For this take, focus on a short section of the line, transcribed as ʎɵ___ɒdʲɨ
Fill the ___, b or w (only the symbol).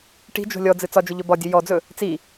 b